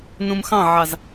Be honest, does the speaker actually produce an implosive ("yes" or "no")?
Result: no